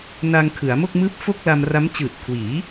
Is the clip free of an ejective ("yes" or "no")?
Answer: yes